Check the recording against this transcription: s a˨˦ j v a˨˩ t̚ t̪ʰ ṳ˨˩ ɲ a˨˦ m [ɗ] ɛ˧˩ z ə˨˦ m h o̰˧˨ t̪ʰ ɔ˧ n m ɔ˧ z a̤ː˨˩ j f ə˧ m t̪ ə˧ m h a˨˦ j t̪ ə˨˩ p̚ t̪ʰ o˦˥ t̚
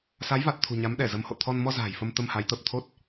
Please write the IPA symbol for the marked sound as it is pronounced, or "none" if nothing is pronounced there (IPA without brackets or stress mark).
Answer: ɗ